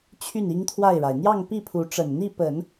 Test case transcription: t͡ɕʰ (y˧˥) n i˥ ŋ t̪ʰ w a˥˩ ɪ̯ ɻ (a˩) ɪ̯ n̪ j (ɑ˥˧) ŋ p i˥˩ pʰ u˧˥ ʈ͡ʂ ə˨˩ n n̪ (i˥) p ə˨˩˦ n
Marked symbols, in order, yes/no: no, yes, yes, no

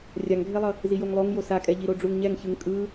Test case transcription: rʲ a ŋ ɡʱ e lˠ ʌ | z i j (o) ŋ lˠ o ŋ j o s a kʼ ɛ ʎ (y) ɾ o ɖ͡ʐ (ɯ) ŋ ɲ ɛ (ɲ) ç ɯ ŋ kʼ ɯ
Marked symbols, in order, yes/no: yes, no, no, no

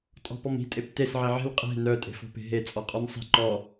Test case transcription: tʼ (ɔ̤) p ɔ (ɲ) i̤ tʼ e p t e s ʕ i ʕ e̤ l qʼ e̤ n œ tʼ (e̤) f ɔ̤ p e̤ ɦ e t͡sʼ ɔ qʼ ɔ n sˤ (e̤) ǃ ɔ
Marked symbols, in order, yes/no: yes, no, yes, no

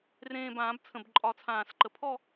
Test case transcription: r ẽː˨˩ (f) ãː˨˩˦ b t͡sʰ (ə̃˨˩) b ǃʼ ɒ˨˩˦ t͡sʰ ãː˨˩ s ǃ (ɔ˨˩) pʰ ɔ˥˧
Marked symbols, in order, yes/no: no, yes, no

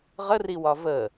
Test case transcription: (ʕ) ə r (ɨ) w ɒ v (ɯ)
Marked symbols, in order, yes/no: no, no, no

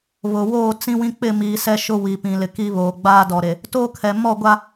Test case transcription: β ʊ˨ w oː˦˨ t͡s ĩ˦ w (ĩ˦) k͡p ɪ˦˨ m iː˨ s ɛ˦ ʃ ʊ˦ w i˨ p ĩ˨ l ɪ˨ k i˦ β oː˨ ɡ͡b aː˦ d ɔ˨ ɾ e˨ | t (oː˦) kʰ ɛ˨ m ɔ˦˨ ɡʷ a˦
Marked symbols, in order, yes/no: yes, yes

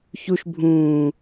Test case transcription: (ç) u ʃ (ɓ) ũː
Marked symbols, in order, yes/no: yes, no

